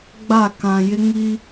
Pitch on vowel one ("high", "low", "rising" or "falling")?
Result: falling